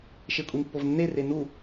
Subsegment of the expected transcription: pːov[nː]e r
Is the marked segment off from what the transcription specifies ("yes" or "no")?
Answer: no